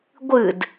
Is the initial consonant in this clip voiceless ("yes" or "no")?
no